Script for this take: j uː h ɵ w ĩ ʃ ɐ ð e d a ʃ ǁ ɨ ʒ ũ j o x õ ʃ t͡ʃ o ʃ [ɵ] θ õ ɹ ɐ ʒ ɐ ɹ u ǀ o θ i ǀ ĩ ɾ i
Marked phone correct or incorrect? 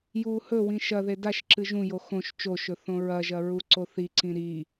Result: correct